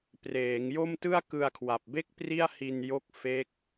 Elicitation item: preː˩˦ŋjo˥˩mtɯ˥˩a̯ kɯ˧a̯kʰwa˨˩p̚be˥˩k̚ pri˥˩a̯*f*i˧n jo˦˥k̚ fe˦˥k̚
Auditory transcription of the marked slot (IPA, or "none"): h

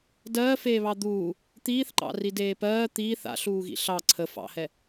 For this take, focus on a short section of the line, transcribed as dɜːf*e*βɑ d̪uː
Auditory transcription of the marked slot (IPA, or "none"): eː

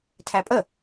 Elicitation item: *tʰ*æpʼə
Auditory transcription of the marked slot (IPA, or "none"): tʰ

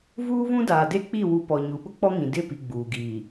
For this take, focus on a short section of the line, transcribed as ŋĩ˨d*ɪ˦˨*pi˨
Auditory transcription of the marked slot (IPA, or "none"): ɪ˦˨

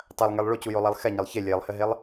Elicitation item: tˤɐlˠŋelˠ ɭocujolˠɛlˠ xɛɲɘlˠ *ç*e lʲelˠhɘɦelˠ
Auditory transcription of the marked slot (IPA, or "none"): ç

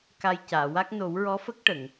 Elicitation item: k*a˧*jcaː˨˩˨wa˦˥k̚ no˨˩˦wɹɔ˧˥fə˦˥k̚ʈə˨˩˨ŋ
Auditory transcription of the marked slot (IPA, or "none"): a˧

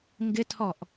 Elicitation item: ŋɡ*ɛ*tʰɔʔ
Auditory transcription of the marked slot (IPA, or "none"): ɪ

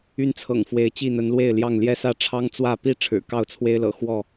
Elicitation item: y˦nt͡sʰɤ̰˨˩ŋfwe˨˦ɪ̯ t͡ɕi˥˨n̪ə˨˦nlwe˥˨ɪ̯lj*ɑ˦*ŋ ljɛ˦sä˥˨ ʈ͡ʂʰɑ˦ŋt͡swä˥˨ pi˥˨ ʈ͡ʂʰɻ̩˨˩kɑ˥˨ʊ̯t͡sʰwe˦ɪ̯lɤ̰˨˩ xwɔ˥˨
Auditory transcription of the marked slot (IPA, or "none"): ɑ˥˨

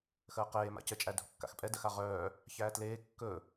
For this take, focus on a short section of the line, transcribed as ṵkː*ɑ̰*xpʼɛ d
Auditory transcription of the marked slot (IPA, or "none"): a̰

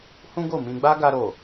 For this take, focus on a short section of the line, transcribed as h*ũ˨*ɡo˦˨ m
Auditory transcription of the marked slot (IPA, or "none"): ũ˦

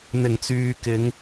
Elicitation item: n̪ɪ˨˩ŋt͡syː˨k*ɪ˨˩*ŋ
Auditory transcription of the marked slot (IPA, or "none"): ɪ˨˧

